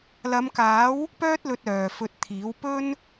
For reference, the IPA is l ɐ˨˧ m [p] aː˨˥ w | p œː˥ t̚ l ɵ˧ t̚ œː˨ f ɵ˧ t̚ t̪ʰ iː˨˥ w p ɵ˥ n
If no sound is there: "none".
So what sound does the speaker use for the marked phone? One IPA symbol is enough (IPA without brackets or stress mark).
k